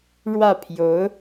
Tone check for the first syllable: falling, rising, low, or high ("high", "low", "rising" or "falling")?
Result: falling